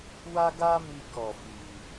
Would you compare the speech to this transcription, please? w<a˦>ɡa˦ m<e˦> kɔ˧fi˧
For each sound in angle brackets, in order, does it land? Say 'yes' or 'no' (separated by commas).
yes, no